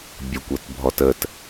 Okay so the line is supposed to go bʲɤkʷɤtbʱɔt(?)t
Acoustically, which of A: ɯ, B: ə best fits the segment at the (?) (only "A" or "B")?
B